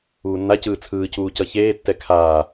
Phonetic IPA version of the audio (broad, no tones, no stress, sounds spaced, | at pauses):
uː nː a c ɯː t͡sʰ ɯː c uː c ʌ ç eː tː ɛ kʰ aː